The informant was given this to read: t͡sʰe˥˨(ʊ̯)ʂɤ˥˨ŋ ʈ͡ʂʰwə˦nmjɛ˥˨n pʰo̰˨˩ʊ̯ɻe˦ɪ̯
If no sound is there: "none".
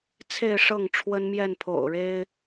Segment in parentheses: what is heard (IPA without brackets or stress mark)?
ɪ̯